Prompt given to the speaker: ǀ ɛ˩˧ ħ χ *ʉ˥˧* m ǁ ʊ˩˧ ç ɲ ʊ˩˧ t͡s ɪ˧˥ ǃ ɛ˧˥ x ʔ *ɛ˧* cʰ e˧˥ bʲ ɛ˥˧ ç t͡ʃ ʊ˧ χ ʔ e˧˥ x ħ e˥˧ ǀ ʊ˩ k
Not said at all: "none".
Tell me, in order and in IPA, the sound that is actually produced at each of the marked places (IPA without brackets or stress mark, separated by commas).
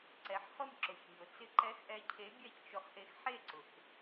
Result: ʊ˥˧, ɛ˧